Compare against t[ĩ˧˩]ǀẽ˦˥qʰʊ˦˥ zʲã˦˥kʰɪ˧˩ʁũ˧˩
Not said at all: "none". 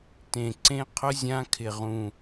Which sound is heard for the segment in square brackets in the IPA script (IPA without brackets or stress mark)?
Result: ẽ˧˩